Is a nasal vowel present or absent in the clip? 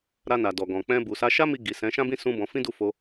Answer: present